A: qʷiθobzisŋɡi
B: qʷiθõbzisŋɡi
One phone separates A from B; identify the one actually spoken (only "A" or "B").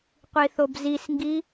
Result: A